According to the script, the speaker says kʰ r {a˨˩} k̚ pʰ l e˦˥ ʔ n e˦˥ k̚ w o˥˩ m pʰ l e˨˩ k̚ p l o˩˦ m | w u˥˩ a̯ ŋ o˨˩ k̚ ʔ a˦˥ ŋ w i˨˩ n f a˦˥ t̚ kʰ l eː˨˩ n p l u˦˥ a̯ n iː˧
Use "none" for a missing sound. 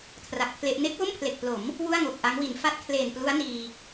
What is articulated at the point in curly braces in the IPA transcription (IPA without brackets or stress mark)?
a˨˩